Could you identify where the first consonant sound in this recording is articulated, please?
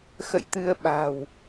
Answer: velar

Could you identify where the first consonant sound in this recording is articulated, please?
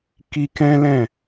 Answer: velar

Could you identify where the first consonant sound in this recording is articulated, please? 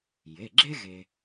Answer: palatal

